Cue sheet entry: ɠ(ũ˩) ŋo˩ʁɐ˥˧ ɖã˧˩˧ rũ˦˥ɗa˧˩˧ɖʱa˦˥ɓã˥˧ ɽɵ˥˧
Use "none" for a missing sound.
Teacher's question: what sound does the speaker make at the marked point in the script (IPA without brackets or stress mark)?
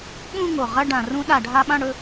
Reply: ũ˥˧